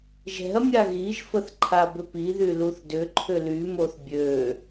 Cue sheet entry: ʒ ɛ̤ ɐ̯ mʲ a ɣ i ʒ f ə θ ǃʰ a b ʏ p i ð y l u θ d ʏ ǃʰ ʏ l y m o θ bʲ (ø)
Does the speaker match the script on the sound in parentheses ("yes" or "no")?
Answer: yes